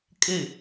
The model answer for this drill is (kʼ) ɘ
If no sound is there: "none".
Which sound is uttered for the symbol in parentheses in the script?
kʼ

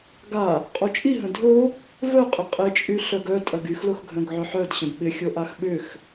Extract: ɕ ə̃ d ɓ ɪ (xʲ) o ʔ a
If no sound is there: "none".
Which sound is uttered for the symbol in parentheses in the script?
xʲ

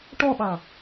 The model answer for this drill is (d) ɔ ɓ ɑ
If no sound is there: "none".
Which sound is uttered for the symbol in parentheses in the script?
ʈ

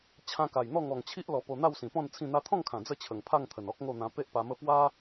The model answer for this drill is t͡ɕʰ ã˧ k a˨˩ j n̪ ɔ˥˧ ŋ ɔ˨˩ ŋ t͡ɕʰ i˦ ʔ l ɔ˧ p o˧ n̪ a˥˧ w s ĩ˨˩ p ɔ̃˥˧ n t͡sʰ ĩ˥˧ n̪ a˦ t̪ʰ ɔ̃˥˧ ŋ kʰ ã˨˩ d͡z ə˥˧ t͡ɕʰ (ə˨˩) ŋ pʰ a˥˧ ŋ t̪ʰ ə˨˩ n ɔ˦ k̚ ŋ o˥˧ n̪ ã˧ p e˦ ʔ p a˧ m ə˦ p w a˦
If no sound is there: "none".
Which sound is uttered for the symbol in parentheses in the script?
ə˨˩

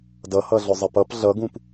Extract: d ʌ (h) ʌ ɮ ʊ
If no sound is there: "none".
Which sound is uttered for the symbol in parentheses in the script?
h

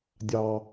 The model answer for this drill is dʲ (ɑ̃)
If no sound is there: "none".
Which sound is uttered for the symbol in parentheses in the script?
ɑ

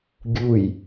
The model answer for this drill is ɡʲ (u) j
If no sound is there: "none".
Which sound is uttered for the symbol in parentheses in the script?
u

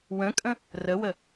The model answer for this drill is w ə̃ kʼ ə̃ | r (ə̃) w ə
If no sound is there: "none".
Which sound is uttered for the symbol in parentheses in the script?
ə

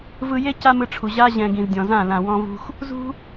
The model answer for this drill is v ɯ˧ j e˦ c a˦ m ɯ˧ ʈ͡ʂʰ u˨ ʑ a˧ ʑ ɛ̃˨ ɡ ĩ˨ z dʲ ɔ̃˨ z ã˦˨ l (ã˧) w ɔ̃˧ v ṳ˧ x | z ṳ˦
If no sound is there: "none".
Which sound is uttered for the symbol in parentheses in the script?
ã˨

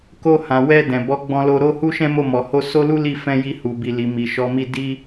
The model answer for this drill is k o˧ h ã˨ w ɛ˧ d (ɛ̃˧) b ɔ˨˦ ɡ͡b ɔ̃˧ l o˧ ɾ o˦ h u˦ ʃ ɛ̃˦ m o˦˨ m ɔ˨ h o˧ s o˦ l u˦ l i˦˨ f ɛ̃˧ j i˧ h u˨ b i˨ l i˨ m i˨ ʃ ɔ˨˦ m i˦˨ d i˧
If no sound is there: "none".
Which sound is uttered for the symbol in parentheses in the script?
ɛ̃˨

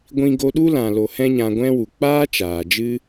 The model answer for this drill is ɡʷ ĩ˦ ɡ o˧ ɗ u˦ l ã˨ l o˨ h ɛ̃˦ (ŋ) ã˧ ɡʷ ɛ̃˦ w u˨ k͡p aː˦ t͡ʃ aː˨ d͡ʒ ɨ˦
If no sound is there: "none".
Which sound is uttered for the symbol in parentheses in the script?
ɲ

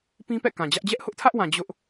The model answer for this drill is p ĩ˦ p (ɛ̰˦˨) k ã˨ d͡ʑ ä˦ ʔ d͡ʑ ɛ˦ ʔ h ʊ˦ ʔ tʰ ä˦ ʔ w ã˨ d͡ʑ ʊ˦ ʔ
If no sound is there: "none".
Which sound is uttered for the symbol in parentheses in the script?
ɛ̰˦˨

